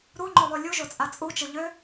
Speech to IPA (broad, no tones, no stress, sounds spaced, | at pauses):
ɾ u ŋ͡ǃ o lˠ u lʲ u ʒ o t͡sʼ a t͡sʼ u t͡ʃ ə ʎ ø